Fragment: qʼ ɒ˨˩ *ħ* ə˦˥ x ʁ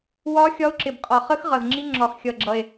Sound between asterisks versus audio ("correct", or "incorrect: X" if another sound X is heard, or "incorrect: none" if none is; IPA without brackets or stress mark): incorrect: χ